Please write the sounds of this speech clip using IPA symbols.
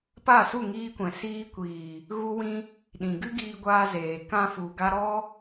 p a˦˨ s u˦˨ ŋ iː˧ kʷ ɛ̃˨ s iː˧ kʷ iː˨ | ɣ u˦ w ĩ˦ | ɗ ĩ˨ ɡ ɨ˦ ɡ iː˧ ɡʷ aː˧ z eː˨ k ã˧ f u˨ ɡ a˧ ɾ ɔ˦

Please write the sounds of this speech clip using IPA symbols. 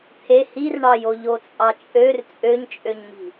t̪ʰ e h i r ɳ ɑ j o ʎ o t͡sʼ ɑ t͡ʃʼ ø r t͡sʼ ø ɲ t͡ʃʼ ø ɲ m i̤

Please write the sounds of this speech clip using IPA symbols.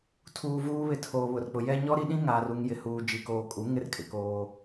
tʰ uː˨ v uː˦ β ɪ˦˨ tʰ oː˨ β ʊ˨ r k͡p ʊ˨ j ɛ˦ ɲ ɔ˦ ɾ i˦ ɗ ĩ˦ ŋ aː˨ r u˨ ŋ j ɪ˨ h uː˨ d͡ʒ i˨ k oː˨ kʼ u˨˦ ŋ ɪ˦ r kʼ ɪ˨ k oː˦

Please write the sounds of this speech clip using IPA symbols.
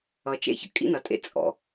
ʌ˨ t͡ʃ ḛ˦ ç ə̰˨ kʼ ḭ˦ n ʌ˨ tʼ ḛ˦ t͡sʼ ɔ̰˨

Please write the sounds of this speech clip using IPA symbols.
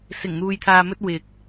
s ɪ˨˩ ŋ n̪ uː˨ j t̪ʰ aː˨ m ɵ˧ t̚ w ɪ˨ k̚

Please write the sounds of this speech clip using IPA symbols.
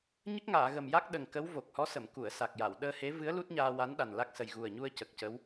ɲ ə˦˥ k̚ ŋ aː˨˩˨ ɣ ə˨˩ m j a˦˥ k̚ ɗ ə˨˩ ŋ k ə˧˥ w v o˨˩ k̚ h ɔ˧˥ s ə˨˩˨ m k u˨˩˨ ə̯ s a˨˩ k̚ j a˨˩˨ w ɗ əː˧ h e˧˥ v ɨ˧˥ ə̯ l u˦˥ t̚ ɲ aː˧ w a˧˥ n ɗ a˨˩ n l a˦˥ k̚ s ə˨˩ j ɣ u˨˩ ə̯ ɲ u˧ ə̯ c ə˨˩ k̚ c ə˧˥ w

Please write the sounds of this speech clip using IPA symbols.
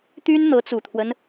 t̪ y˥ n n̪ ɤ˧˥ t͡s u˨˩ t̪ʰ w ə˦ n

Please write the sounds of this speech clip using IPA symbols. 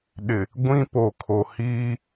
ɗ ɪ˨ | ɡʷ ĩ˦ p o˨ kʰ o˨ h iː˦

